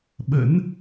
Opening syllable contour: rising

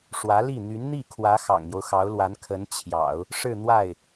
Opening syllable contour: rising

